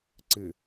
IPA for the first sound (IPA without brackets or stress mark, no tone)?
ǀ